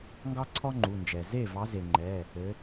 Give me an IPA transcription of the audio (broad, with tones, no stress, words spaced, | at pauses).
ŋɡɑ˥ǀʰɔ˥ŋ͡ǃu˩˧˩nd͡ʒɛ˩ ze˥˩vɑ˨˦ ze˩ŋ͡ǃɛ˩˧˩ | ɘ˨˦